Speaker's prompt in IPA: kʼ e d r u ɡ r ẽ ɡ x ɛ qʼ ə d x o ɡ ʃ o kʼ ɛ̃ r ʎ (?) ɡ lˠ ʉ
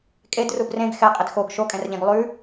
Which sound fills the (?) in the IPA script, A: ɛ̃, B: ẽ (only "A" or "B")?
A